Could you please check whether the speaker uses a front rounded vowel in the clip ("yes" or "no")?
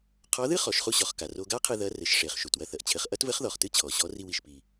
no